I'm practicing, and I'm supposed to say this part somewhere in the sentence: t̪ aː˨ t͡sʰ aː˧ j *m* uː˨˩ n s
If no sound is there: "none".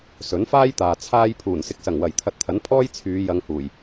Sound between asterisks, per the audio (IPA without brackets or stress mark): pʰ